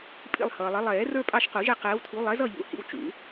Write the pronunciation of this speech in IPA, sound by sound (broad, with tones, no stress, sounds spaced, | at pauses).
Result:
pʼ ḭ˦˨ lˠ h ʌː˨ lˠ ʌ˨˦ lˠ ɛː˨˩˦ r ə˞˦ pʼ ɑ˦˨ ʃ q u˨˩˦ ʒ ɛ˦˨ q ɛː˨˦ w tʰ u˨˦ lˠ ɛ˨˦ z ʌ˦˨ ʎ ṵ˨˩˦ h ḭ˦˨ w t͡ʃ ṵ˨˩˦